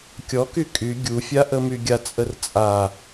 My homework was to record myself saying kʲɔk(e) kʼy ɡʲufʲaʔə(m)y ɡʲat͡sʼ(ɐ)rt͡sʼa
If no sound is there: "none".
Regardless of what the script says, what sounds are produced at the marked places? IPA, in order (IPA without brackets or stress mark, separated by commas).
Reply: y, m, ə